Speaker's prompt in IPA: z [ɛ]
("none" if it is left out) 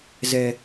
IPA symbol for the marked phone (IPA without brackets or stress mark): ɛ